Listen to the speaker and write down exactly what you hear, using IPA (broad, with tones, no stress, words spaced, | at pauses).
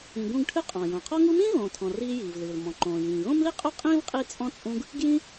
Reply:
ĩ˨ɡũ˦ɡ ʈʰɨ˦qʼɔ̃˩jõ˩ qʰɔ˦ŋu˦mĩː˥ ɣõː˨tʰɔ̃˨riː˦jiː˩v lɨː˩l mɔ̃˩ǃõː˩jĩː˩ ɣõ˥mli˥ qʼu˥qʼĩː˥vqʼi˦t͡sʼɔ̃˦ t͡sʼũ˦ɡ | ɡjĩ˦